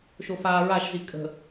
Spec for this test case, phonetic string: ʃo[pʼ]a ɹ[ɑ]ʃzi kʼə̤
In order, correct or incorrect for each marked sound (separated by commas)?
incorrect, incorrect